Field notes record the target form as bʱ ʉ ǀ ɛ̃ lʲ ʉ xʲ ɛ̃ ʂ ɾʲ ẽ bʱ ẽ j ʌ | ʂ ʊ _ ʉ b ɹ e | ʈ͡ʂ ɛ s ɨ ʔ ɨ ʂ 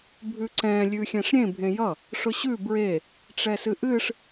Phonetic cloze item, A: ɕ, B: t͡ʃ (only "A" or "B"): A